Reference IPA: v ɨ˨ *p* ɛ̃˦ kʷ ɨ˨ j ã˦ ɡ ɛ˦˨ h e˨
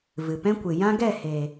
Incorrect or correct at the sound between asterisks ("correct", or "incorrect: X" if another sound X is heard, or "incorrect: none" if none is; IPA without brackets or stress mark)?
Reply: correct